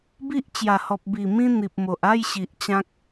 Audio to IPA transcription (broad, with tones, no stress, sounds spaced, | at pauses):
b i˦ ʔ t͡ɕ j a˨˩ h ɔ˨ p̚ b i˨˩ m ĩ˧ n̪ i˨ p̚ m o˨ ʔ a˥˧ j ɕ i˨ ʔ t͡ɕ ã˦ k̚